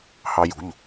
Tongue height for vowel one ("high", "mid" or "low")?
low